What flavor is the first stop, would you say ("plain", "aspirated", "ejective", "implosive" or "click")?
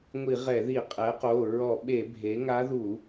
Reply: ejective